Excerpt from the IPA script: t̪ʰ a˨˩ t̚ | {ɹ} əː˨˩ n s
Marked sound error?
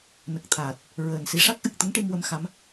no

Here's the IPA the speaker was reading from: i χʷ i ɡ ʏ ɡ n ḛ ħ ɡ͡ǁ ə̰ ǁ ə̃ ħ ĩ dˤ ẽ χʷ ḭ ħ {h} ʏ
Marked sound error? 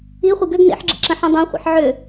yes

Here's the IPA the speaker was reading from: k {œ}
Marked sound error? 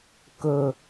yes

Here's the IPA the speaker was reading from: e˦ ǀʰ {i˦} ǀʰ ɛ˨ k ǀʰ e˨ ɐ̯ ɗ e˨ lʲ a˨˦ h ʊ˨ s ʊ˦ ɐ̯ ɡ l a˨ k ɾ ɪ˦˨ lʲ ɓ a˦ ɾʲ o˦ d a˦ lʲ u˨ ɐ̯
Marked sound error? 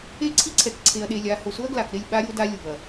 no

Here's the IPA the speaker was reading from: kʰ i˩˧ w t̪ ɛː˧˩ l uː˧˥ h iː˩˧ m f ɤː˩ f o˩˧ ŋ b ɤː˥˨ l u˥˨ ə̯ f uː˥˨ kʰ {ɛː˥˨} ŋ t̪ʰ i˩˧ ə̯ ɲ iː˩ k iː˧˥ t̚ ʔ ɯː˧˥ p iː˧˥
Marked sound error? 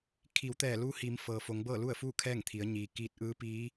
no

